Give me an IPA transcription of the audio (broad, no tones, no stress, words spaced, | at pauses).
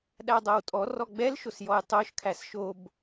ɗædˤɛwtʼɔ rɔɡ͡bɛl ʃosjɔjtˤoʃ kʰæsʃob